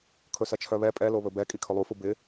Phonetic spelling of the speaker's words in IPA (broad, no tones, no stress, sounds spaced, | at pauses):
kʰ ɵ s ɐ t͡ʃʰ œ β ɛ pʼ ɛ l o β ɵ b ɛ kʼ i kʰ ɵ lˠ u f u b ɪ